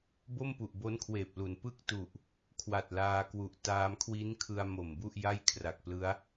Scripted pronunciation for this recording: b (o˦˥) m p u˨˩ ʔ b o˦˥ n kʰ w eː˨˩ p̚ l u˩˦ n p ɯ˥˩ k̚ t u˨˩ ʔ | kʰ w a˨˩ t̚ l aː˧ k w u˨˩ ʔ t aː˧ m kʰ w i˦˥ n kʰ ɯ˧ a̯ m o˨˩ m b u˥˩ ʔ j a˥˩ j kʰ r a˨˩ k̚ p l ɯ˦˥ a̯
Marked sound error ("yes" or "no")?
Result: yes